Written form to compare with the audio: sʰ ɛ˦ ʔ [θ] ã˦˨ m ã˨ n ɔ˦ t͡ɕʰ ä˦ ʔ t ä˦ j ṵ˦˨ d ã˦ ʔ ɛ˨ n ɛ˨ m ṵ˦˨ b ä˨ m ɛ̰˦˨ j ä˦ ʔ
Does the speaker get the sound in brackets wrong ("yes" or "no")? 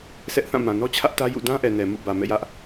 no